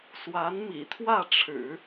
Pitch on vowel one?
rising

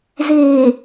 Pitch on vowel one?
low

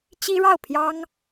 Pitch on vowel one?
high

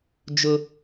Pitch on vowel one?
high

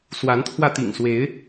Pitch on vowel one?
rising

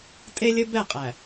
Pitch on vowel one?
high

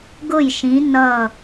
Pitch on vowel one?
falling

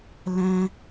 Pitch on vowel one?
high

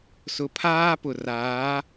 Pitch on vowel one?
low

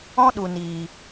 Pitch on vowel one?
high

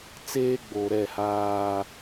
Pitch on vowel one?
high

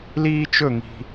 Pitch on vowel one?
high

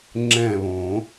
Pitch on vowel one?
falling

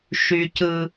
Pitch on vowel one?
low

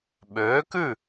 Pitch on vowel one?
rising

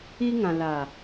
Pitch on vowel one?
high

